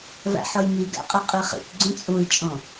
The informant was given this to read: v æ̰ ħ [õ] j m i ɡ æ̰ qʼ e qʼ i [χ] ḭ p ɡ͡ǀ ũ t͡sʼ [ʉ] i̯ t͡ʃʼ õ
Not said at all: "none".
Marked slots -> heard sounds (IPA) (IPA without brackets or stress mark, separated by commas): o, χ, u